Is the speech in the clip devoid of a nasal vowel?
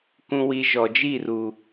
no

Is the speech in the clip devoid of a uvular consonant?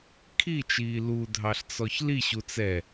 yes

